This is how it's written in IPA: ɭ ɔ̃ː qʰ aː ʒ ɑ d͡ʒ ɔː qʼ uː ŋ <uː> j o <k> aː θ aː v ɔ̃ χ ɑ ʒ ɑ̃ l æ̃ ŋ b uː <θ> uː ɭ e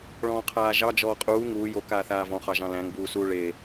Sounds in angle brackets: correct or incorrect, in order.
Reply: correct, correct, incorrect

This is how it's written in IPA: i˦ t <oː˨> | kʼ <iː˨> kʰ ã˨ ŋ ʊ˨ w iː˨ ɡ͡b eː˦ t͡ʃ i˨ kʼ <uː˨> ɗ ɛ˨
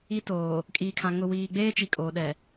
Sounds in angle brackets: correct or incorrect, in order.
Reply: correct, correct, incorrect

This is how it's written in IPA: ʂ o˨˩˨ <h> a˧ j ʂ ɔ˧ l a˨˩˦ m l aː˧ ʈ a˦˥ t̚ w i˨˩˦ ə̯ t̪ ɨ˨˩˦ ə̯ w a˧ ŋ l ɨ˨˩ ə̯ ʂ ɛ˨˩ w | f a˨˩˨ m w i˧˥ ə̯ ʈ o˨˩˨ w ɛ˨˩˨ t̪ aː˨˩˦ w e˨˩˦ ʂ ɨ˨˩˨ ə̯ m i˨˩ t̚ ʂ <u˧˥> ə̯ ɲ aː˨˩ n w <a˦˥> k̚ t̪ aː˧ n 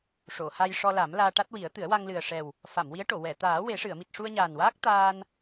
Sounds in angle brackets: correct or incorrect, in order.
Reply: correct, incorrect, incorrect

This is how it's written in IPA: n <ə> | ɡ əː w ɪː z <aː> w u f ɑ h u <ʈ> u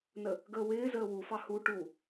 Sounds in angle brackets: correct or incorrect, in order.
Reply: correct, incorrect, correct

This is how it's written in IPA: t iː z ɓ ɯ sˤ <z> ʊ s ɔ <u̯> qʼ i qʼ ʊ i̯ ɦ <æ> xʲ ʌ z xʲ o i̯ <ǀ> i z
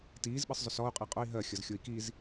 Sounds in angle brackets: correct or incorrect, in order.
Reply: incorrect, correct, incorrect, incorrect

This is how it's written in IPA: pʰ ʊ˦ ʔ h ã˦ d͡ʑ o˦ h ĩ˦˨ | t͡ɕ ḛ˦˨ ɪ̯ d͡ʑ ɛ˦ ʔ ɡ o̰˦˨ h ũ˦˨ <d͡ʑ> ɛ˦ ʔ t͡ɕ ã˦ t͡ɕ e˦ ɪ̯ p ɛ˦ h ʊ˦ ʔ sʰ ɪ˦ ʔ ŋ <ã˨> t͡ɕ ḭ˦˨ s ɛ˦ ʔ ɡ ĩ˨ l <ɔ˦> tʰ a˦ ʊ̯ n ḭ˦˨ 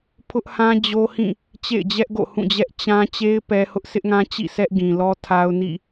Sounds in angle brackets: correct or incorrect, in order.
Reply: correct, incorrect, correct

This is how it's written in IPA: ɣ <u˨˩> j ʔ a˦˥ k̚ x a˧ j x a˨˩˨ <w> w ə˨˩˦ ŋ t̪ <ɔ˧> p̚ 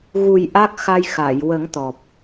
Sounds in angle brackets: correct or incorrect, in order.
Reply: correct, incorrect, incorrect

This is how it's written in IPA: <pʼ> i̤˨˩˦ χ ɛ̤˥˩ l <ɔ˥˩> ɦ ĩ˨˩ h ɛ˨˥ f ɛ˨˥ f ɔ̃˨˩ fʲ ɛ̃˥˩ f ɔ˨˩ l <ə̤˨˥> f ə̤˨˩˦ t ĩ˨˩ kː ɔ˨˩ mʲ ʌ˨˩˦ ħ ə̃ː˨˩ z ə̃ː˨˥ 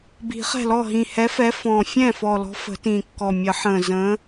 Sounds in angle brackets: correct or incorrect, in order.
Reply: incorrect, correct, incorrect

